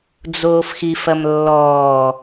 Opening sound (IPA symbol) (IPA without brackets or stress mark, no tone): d͡z